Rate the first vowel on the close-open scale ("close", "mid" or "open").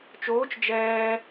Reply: mid